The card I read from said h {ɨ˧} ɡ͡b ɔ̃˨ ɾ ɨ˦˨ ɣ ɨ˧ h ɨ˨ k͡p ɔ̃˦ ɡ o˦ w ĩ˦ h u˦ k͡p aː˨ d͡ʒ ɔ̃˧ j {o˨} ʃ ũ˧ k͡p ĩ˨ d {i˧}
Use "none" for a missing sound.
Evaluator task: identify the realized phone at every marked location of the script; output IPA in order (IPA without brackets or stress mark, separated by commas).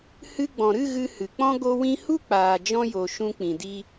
ɨ˧, o˨, i˧